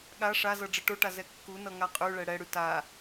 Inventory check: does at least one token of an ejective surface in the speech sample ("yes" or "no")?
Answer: yes